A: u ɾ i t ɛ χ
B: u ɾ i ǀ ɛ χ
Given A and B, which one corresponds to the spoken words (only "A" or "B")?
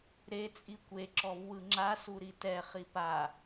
A